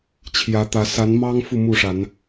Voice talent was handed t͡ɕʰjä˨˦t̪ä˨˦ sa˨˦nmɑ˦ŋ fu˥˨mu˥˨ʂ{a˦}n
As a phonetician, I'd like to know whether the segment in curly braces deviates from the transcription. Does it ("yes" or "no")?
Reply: yes